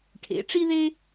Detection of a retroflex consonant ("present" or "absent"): present